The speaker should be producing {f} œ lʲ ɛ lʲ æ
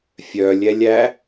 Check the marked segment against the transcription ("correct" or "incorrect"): incorrect